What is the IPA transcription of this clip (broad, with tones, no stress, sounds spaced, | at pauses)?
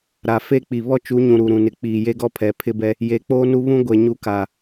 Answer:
ɾ a˨ f e˦ k͡p i˨ β ɔ˦ t͡ʃ u˨˦ ɲ ũ˨ ɾ u˨ ɾ ũ˨ n ɪ˨ k͡p iː˨ j e˦ ɡ ɔ˦ pʰ ɛ˨ pʰ ɪ˦ b ɛ˦ | j e˨ k͡p oː˦ n u˦ β ũ˦ ɡʷ e˨ ɲ u˦ k a˨